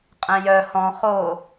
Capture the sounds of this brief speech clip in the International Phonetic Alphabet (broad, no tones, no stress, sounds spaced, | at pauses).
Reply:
qʼ ɛ̃ j œ h ɔ̃ χ o